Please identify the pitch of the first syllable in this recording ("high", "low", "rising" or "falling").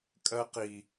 high